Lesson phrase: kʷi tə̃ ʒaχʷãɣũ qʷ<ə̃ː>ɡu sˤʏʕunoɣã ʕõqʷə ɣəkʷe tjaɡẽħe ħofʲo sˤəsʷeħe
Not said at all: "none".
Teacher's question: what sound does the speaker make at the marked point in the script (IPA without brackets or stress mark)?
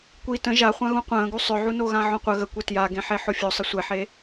ə̃ː